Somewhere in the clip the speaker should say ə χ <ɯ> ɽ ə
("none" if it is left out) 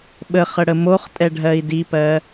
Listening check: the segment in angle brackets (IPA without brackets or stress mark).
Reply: ə